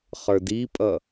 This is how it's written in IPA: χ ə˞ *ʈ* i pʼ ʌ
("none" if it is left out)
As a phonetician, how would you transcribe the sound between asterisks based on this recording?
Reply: d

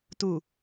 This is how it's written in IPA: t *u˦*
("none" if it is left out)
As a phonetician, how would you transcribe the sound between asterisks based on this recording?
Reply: u˨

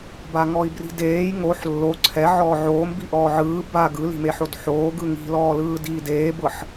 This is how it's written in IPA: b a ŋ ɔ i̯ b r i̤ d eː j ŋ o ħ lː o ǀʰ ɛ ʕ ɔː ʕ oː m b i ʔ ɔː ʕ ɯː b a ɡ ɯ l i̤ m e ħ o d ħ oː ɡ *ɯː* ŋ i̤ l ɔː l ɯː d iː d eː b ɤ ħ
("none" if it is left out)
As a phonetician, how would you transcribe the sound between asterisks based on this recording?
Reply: ɯ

